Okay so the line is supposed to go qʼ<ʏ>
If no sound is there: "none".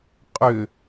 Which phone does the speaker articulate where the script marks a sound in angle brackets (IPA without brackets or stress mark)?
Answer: ʏ